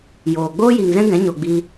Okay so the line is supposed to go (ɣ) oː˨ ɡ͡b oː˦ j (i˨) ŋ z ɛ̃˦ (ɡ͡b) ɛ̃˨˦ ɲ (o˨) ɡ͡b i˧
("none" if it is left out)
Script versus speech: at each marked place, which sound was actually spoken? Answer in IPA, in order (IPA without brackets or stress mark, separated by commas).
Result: j, i˨, ɡ, o˨